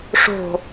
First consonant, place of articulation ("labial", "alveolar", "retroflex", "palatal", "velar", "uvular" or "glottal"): retroflex